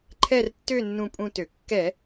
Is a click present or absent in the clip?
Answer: present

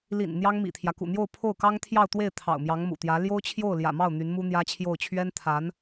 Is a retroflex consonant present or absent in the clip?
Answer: absent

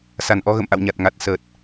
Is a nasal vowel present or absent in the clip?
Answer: absent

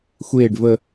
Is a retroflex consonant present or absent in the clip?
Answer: present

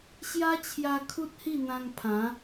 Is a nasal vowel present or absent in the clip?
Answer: present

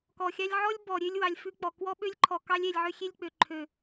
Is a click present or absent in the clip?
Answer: present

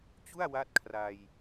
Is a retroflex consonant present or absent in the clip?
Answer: absent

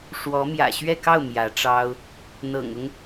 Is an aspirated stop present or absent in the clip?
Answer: absent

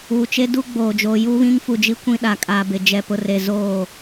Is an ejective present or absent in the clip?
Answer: present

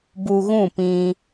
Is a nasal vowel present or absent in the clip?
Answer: present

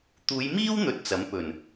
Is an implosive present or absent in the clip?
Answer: absent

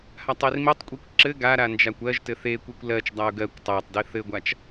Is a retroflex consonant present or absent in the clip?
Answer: absent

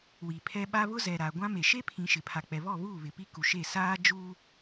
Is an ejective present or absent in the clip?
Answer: absent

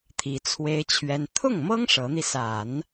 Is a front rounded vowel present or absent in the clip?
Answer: absent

